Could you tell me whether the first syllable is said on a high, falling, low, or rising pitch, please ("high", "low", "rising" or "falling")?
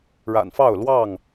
low